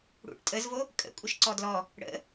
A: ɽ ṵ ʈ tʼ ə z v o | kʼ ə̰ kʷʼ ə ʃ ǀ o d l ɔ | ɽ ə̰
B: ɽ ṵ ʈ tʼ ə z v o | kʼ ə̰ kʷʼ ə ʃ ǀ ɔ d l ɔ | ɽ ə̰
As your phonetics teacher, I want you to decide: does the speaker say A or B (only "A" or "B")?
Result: B